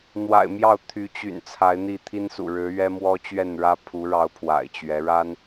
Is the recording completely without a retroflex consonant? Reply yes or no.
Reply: no